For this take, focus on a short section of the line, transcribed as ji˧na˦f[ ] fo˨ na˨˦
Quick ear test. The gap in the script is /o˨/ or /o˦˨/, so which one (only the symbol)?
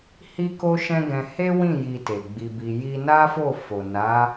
o˦˨